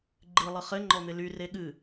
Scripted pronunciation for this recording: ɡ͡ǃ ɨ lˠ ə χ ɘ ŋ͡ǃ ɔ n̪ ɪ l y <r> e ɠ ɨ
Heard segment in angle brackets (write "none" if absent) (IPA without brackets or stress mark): r